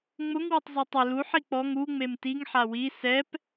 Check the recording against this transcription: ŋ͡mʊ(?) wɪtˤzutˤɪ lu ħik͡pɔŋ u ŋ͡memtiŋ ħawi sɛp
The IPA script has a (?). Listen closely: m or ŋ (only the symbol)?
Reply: ŋ